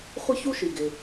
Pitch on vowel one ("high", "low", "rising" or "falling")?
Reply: high